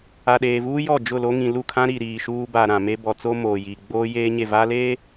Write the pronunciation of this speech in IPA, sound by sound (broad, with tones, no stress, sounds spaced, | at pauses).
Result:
a˨ ɗ eː˨ v uː˦ j ɔ˦˨ d͡ʒ ʊ˦˨ l o˦ ŋ ĩ˨ l u˦˨ kʰ ã˦ ɾ i˨ ɾ iː˨ ʃ uː˦ b a˨ ɾ ã˨ m e˦ b ɔ˨ t͡s oː˦ m oː˨ j i˨ ɡ͡b oː˦ j eː˦ ɲ e˦˨ v a˦ l eː˦